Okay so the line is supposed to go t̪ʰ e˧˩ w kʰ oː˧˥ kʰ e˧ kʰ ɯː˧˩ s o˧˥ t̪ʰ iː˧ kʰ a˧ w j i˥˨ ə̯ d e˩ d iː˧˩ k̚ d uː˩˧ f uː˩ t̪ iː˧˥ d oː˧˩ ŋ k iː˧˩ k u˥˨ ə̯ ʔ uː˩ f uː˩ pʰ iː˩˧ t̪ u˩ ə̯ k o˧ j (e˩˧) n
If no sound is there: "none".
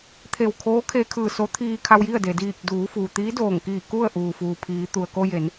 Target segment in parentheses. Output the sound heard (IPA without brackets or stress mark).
e˩˧